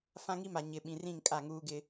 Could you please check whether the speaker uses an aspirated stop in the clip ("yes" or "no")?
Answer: no